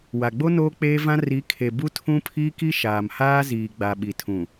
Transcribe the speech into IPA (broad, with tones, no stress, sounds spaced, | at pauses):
w a˨ ɡ͡b o˦ n oː˦ k͡p eː˦ v ã˦ r i˨˦ kʰ e˨ b u˦ tʰ ũ˦ pʰ iː˦ k i˦ ʃ aː˨ m h aː˦ z iː˨ ɡ͡b a˨ ɓ i˨ tʰ ũ˨